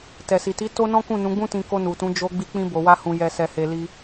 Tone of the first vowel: low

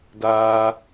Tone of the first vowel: low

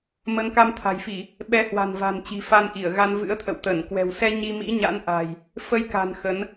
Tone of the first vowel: rising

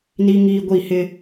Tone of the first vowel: high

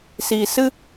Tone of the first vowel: low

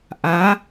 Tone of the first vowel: rising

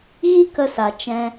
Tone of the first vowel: high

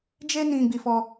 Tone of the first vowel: high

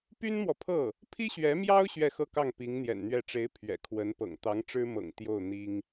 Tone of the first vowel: high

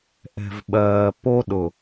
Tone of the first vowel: low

